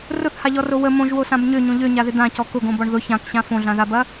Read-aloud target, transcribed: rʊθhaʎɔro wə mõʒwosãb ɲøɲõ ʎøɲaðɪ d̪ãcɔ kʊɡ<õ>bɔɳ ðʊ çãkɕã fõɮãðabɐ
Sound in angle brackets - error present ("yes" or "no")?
no